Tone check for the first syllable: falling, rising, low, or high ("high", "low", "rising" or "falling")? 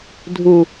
low